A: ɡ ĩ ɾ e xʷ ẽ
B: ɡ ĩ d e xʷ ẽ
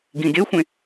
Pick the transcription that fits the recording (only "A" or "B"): B